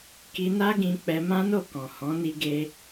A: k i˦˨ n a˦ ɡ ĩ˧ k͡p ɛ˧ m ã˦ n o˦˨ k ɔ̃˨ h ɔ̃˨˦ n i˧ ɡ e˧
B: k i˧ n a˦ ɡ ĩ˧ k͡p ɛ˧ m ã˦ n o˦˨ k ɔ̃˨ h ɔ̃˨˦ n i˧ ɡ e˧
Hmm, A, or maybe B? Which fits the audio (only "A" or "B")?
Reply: B